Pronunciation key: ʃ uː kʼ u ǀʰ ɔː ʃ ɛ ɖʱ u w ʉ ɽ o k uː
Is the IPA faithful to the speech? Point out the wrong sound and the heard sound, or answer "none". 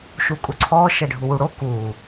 ʉ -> u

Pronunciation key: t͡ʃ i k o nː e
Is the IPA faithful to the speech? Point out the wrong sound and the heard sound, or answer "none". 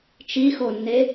k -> x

